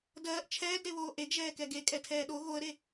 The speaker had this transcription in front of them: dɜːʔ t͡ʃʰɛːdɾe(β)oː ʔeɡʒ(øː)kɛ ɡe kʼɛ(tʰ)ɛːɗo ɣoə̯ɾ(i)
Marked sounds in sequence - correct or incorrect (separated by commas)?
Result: correct, incorrect, correct, incorrect